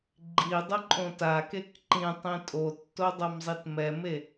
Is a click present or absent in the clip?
present